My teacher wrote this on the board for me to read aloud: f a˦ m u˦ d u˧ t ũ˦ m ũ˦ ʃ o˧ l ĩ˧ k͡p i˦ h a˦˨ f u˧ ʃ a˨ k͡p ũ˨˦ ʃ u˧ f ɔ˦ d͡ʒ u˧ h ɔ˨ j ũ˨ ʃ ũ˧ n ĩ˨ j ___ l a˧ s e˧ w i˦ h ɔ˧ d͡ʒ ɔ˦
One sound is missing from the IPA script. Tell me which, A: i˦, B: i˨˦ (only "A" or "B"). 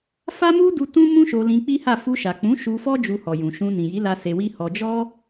B